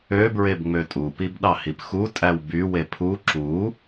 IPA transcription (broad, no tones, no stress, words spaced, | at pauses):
ø bɹebŋ͡møtʼu pibɗɑhipxu tʼæwby wepʰu ǁu